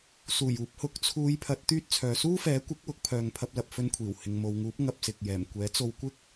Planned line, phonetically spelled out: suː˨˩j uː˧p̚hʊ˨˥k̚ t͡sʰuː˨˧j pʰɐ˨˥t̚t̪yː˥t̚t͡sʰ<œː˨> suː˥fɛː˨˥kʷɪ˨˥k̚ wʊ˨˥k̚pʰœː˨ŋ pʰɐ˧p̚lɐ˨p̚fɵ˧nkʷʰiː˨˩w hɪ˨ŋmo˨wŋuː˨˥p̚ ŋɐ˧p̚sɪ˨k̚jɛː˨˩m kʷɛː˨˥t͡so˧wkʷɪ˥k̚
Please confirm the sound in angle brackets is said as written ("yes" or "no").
yes